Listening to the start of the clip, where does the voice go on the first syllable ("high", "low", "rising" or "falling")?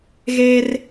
high